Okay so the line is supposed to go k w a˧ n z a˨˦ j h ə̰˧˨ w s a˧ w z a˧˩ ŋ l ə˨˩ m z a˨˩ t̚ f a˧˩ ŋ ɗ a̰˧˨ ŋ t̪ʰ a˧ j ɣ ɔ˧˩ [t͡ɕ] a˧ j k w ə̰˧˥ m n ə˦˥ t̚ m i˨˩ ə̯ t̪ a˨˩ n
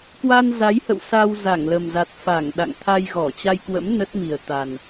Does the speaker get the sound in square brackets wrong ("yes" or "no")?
no